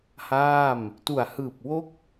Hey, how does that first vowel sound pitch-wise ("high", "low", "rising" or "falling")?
falling